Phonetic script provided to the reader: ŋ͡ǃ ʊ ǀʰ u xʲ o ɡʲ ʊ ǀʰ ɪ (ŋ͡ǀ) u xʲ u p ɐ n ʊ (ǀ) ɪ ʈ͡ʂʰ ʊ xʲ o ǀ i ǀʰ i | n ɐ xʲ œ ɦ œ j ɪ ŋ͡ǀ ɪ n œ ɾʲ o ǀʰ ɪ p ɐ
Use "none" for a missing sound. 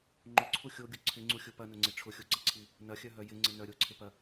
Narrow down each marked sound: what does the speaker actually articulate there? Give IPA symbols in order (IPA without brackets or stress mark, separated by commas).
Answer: ŋ͡ǀ, ŋ͡ǀ